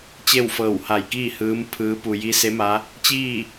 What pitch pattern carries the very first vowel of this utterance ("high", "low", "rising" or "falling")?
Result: falling